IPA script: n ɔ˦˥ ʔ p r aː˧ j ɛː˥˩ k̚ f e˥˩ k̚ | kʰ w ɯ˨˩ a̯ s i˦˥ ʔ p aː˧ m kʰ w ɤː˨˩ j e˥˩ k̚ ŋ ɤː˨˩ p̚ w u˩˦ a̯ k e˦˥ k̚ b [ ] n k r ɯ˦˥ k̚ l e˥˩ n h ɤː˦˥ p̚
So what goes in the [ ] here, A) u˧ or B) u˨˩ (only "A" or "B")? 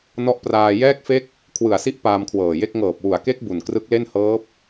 B